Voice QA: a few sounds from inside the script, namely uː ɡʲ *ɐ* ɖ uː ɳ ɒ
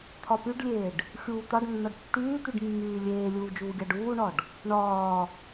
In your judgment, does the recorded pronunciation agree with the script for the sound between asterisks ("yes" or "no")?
no